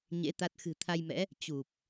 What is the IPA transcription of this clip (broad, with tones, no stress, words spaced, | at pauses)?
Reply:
ɲḛ˧˥ t̪a˦˥t̚ xɨ̤˨˩t̪ʰa˧jmɛ̰˧˥ | t͡ɕu˨˩p̚